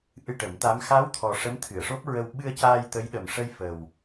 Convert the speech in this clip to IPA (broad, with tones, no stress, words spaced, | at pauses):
ʔɨ˧ʈə˨˩˦mt̪a˧˥m xa˧˥wt̪ʰɔ˨˩ ʂə˧˥mt̪ʰɨ˨˩˨ə̯ʂo˦˥p̚ɹə˧w ɓɨ˧ə̯caː˧j t̪ə˧˥jɗə˨˩mʂə˧j fə˨˩w